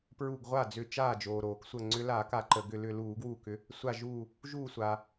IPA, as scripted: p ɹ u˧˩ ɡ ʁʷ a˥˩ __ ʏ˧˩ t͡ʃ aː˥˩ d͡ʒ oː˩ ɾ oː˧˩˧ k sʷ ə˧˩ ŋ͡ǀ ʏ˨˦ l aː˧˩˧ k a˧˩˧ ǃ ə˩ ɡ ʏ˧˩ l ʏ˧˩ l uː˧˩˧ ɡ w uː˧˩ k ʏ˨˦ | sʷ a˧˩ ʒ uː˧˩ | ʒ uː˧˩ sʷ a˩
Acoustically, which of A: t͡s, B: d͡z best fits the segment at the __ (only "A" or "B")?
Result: B